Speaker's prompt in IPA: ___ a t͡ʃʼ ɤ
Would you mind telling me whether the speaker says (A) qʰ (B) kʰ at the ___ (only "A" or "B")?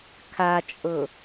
B